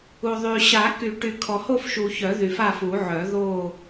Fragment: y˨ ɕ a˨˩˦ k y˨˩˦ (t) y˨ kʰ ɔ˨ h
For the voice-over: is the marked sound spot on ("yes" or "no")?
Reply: no